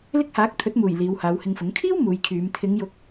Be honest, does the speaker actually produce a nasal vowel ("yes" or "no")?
no